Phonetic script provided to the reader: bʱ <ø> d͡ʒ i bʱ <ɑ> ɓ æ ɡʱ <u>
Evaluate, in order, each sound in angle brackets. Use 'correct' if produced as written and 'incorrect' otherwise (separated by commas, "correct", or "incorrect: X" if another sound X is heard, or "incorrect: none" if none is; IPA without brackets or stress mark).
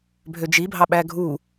correct, correct, correct